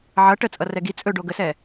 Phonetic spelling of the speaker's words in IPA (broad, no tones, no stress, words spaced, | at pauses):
ʕʌ ʈət͡sʼʌ rɛɡi t͡sʼɵ ɖoɡəsɛ